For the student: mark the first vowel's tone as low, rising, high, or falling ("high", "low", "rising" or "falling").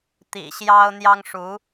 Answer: low